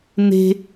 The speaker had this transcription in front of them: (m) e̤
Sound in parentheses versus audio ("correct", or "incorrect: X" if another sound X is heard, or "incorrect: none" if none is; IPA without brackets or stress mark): incorrect: n